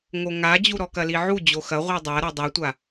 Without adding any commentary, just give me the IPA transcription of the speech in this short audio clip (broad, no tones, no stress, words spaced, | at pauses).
ŋoŋad͡ʑuɾɔ kɐliʕu d͡ʑoxɐ ʁʷidˤa ɾodˤɨtʷa